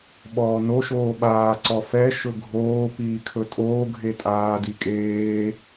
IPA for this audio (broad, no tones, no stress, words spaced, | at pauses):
ɓɔːno ʃoːɓaː ǀɔfɛ ʃɵɡʱoː piːkʰɵtʼoː ɡʱetʼaː dikʼeː